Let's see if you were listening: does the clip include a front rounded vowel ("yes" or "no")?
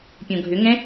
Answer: yes